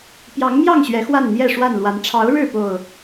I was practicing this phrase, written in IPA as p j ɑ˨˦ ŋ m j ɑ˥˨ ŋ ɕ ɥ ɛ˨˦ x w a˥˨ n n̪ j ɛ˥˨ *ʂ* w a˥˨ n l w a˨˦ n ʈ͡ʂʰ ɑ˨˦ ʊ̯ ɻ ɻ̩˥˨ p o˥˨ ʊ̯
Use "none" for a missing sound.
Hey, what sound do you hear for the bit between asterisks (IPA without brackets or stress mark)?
ʂ